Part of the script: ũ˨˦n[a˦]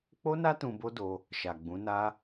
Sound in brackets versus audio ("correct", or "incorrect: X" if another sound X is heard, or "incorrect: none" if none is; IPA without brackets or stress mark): correct